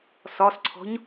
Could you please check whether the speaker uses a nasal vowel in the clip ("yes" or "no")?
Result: no